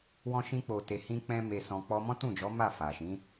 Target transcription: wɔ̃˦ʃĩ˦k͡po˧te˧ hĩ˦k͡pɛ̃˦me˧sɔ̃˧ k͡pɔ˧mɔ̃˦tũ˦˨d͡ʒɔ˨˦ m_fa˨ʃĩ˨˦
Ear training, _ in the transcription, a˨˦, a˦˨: a˦˨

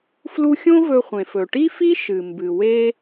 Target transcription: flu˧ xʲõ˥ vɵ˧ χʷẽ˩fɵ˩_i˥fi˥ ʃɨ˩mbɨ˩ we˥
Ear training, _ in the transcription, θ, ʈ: ʈ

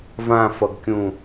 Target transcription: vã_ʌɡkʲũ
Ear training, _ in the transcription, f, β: f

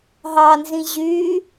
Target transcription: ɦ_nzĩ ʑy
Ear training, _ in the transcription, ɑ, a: ɑ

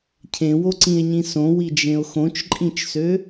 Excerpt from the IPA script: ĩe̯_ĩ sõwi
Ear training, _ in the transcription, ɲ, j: ɲ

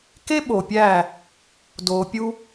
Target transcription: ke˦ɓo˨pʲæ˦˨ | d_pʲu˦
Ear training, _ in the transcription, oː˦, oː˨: oː˨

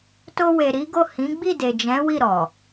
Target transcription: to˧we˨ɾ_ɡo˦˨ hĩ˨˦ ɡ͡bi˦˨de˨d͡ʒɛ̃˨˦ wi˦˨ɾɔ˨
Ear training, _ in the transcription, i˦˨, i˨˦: i˨˦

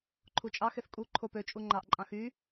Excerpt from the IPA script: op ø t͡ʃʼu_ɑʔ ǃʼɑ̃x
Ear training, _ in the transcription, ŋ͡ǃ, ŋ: ŋ͡ǃ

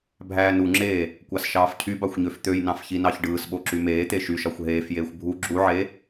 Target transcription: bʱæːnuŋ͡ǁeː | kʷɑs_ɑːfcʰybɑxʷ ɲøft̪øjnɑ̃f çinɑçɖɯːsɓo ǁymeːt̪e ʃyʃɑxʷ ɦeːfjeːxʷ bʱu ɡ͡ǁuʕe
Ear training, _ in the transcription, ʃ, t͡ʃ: ʃ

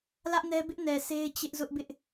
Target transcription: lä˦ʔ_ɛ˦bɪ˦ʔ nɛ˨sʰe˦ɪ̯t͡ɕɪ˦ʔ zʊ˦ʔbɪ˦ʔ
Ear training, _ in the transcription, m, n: n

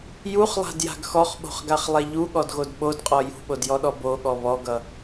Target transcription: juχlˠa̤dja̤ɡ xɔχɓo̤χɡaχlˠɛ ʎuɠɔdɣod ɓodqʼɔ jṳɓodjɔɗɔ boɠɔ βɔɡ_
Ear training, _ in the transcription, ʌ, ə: ʌ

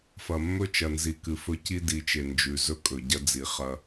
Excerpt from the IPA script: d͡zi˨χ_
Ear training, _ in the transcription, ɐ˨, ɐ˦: ɐ˦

